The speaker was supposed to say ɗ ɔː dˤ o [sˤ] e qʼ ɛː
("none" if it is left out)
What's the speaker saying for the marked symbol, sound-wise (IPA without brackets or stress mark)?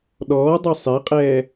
sˤ